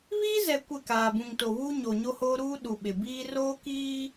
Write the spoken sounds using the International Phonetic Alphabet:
βiː˦zɛ˨ kʷɪ˦˨kaː˨bũ˨ŋto˨ βuː˦ɲo˨ɲo˦hoː˦ ɾuː˦ ɗu˨ ɓɪ˨biː˦ roː˦kiː˦

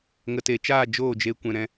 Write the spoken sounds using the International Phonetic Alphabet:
ŋə˨te˨t͡ʃaː˦˨ d͡ʒoː˦˨d͡ʒe˧ kʷɛ̃˧ɾɛ̃˦

